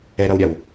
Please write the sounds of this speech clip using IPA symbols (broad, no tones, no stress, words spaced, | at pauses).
ɛɾʌwɾʲaw